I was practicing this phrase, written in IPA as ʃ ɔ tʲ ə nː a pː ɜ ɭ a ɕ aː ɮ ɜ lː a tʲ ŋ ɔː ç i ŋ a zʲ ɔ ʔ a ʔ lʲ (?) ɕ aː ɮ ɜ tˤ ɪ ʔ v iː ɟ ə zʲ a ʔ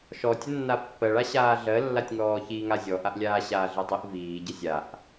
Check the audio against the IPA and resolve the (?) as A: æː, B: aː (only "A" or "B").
B